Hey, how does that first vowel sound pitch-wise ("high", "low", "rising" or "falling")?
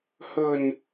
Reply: low